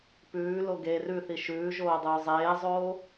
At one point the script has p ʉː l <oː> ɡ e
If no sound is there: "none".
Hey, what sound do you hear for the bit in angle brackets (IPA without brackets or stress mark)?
o